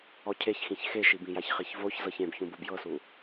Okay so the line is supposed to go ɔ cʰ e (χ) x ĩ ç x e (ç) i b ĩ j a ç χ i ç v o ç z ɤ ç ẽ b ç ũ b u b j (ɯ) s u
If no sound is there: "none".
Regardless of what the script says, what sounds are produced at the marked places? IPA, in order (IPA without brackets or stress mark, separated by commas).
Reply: ç, ʃ, ɤ